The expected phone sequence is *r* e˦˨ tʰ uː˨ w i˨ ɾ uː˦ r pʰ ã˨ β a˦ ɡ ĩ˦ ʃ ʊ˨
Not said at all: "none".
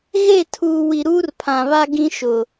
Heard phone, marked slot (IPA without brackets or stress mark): ɣ